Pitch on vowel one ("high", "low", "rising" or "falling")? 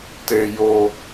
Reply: high